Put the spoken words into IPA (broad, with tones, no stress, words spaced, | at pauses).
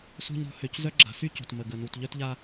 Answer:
so̤˦ɲɾɔ̤˨˦ hø˨czœ˦ ɡ͡ǁa̤˨˦sy˦ co̤˨tmə˨ ɡə˨ nu˨tʎœ˦tʎa˦